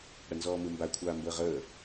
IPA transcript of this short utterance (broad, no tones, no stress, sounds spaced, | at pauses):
ɽ ə n z ɔː m ɯ m b a kʷʰ aː m b əː ʁ əː